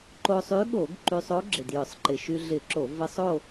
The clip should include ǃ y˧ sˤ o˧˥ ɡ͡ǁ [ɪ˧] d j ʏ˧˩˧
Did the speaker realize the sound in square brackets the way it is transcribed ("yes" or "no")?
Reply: no